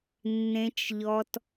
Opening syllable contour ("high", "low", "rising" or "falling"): low